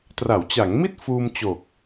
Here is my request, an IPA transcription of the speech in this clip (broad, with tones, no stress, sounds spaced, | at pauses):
t r a˩˦ w t͡ɕ a˩˦ ŋ m i˥˩ t̚ f uː˧ m t͡ɕ o˨˩ k̚